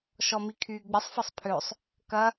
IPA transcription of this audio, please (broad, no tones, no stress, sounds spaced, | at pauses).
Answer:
ʃ ɔ m i kʰ yː ɡ͡b ɪ sˤ f ɐ sˤ pʰ ø sˤ | k ɐ